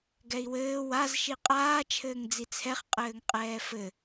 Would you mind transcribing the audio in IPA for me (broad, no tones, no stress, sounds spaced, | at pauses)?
ɡ ɛ i̯ w ɘː w a z ʃ i qʼ aː t͡ʃʰ ɘː ŋ d͡z i t͡sʰ ɛ χ qʼ ɘː ŋ qʼ ɛː f ɘ